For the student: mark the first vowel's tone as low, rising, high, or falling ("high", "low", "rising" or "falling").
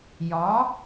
rising